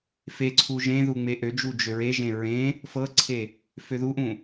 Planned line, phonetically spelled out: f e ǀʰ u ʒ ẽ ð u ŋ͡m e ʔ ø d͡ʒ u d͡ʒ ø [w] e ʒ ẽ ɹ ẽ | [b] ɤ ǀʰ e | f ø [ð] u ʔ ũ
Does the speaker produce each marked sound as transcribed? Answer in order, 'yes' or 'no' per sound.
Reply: no, no, yes

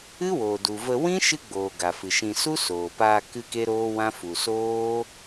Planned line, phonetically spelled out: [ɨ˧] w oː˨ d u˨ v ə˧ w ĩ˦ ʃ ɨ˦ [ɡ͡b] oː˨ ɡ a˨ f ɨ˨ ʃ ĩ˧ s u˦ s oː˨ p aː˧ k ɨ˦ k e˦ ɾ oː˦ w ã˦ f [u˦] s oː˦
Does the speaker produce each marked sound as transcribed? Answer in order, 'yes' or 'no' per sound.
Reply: no, yes, no

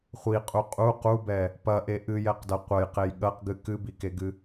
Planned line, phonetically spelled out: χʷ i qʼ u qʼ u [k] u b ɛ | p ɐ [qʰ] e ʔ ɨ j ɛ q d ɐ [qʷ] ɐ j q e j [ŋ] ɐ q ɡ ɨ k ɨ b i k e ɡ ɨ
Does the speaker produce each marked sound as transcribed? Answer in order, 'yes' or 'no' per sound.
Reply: no, no, yes, no

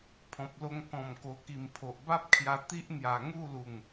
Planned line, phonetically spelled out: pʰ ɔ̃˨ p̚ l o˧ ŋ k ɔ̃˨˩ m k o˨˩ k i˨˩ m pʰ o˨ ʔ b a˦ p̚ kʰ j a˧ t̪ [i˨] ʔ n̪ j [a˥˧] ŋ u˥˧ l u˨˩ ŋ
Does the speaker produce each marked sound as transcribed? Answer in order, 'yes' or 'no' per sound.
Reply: no, no

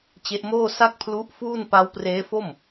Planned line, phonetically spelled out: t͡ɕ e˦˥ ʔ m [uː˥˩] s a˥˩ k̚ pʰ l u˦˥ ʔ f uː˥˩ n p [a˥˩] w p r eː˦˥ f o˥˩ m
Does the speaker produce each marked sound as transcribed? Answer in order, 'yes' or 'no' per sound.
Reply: no, no

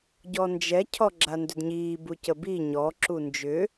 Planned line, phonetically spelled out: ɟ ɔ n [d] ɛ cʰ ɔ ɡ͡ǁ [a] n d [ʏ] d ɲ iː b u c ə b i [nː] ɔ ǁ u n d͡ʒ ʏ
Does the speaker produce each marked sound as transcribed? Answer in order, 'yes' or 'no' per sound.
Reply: no, yes, yes, no

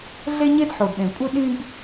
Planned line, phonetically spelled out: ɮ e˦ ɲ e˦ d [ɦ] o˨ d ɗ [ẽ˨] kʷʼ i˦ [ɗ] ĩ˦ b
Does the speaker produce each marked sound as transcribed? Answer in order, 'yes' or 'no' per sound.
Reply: no, yes, yes

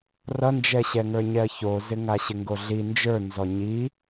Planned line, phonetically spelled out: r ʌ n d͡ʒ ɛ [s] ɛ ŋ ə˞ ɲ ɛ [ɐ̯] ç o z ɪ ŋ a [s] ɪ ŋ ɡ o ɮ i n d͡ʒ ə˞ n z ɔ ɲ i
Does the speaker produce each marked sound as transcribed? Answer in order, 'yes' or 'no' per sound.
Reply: no, yes, no

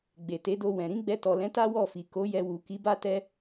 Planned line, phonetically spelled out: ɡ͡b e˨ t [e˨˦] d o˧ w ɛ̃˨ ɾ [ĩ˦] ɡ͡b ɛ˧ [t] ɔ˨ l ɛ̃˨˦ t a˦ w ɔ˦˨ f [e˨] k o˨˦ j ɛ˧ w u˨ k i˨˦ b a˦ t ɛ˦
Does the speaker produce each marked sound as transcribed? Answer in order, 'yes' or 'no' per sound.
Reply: yes, no, yes, no

